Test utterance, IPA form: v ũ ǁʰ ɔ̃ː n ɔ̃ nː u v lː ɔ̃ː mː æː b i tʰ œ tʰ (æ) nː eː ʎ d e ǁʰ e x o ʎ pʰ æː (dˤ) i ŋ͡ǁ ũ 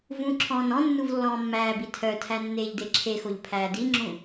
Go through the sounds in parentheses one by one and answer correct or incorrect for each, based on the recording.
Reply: correct, incorrect: d

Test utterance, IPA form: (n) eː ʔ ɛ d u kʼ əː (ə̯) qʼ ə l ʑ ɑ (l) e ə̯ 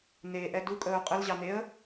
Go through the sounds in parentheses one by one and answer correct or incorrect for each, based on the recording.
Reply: correct, incorrect: ʊ̯, incorrect: n̪

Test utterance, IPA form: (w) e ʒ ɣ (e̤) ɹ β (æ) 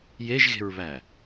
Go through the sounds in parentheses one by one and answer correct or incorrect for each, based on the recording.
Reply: incorrect: j, correct, correct

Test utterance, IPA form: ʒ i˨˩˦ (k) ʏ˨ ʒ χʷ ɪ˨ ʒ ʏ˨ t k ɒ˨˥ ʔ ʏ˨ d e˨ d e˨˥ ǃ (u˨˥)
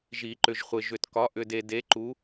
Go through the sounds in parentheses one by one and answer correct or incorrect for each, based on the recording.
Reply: incorrect: ǃ, correct

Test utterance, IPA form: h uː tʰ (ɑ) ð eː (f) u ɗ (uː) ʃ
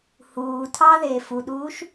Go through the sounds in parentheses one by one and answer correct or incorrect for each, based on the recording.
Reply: correct, correct, correct

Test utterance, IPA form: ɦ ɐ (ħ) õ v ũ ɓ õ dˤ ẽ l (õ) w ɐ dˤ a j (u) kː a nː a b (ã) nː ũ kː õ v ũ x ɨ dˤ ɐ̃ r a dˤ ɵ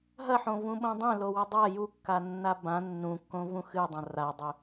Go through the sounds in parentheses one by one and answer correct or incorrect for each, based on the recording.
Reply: correct, incorrect: o, correct, correct

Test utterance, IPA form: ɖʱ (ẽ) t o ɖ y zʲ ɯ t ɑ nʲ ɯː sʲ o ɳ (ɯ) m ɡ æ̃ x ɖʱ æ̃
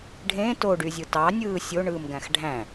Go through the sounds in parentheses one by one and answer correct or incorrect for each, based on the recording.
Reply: correct, incorrect: ɯː

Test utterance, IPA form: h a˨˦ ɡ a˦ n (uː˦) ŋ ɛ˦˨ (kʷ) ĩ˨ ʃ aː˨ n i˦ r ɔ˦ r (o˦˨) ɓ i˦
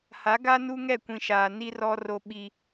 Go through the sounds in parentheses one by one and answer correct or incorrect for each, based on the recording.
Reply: incorrect: u˦, correct, incorrect: o˦

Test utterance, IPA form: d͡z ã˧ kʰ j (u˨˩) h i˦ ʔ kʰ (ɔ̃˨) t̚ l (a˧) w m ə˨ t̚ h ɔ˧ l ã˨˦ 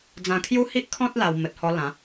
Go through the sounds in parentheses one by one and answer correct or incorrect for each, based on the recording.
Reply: incorrect: u˦, incorrect: ɔ̃˦, correct

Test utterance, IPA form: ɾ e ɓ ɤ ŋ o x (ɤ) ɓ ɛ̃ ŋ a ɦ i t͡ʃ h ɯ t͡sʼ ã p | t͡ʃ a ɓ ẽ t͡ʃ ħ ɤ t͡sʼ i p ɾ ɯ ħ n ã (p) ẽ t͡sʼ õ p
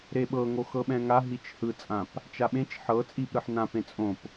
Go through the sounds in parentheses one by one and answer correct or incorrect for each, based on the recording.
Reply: correct, correct

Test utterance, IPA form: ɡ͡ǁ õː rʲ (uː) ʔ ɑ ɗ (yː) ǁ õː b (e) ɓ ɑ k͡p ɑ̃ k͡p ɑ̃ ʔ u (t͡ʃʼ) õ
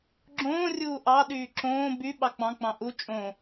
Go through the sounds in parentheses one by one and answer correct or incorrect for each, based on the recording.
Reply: correct, correct, incorrect: y, correct

